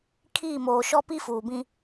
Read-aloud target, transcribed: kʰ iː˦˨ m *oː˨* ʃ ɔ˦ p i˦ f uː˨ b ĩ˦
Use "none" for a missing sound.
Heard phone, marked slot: oː˨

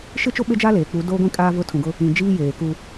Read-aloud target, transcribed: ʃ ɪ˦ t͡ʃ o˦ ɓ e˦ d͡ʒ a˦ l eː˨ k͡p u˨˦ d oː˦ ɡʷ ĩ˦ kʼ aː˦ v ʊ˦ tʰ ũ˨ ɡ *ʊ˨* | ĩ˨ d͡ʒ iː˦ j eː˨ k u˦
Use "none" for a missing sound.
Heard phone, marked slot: ʊ˦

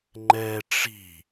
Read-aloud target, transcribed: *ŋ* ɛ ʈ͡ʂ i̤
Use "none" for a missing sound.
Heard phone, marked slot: ŋ͡ǃ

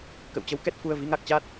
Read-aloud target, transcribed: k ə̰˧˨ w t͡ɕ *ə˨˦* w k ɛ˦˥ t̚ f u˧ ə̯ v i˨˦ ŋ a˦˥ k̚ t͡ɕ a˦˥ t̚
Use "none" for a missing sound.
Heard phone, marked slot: ə˨˦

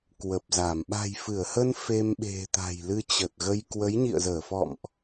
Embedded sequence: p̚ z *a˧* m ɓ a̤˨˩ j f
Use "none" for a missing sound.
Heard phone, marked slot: a˧˩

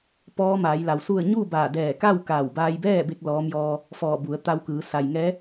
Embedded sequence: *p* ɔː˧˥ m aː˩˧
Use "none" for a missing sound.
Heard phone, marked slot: p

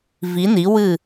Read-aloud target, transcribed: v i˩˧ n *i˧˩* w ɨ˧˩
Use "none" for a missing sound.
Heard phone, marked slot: i˩˧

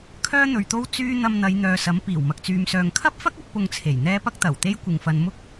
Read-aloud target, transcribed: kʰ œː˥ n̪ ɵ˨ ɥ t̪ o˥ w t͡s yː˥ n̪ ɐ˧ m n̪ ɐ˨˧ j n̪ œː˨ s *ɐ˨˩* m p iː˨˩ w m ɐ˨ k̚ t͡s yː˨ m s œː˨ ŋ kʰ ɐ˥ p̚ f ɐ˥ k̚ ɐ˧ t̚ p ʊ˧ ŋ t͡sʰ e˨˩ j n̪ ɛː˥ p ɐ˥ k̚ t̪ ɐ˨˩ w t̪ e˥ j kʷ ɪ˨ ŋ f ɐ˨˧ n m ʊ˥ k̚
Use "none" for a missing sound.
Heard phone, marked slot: ɐ˨˥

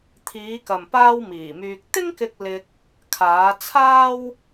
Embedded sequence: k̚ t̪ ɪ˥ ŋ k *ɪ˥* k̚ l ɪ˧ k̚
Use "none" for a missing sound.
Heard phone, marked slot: ɪ˧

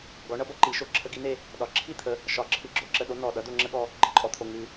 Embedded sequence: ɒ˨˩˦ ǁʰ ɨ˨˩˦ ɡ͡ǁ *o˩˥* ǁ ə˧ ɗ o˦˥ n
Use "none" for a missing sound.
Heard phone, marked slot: o˩˥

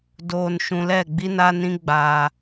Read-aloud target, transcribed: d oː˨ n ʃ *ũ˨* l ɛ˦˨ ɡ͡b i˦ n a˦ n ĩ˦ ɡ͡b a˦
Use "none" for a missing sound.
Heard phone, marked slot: ũ˨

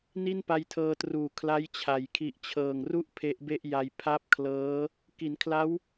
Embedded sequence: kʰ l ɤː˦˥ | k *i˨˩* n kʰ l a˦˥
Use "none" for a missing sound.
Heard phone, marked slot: i˩˦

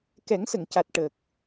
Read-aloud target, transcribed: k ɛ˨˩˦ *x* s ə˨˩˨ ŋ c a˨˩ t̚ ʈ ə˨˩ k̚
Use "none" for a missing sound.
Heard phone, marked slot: ŋ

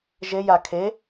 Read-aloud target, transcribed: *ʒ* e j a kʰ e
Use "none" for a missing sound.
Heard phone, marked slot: ʒ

